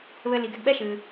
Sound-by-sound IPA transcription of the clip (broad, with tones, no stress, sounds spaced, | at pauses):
β ɘ˧ l i˩ ɡ ɛ˧ ɡ ɓ ɛ˥ ʃ ɨ˩